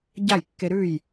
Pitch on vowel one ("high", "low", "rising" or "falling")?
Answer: falling